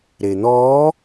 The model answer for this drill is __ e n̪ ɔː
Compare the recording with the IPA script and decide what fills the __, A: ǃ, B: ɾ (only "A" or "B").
B